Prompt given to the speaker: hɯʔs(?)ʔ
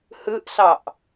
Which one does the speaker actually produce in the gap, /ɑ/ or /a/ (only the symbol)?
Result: ɑ